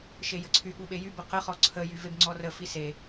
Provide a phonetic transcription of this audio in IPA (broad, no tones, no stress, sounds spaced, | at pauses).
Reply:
ʃ e j ə ǀʰ y ɠ u ɓ e j y b ə q ə χ ɔ ǀʰ ə j y v e b ŋ͡ǀ ɔ r ə f i s e